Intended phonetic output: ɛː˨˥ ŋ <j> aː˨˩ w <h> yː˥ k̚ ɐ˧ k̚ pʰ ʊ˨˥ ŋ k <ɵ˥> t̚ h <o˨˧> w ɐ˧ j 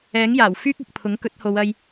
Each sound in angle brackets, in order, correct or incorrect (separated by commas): correct, incorrect, incorrect, correct